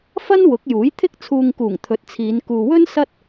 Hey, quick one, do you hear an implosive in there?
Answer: no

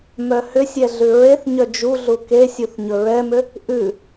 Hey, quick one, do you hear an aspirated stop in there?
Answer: no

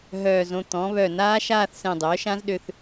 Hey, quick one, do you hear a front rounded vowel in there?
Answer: yes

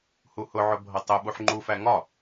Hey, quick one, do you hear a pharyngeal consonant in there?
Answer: yes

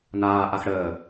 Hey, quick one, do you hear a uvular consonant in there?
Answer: no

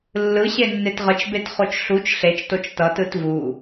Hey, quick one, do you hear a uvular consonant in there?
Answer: yes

